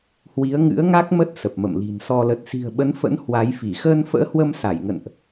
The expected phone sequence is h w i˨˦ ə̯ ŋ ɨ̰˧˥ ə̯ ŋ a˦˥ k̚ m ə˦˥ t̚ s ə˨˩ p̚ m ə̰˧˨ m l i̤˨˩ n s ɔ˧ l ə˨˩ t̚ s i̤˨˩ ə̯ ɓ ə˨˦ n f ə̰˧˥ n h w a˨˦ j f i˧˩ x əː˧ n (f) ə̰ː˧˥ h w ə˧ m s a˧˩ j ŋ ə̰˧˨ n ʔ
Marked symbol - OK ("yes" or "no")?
yes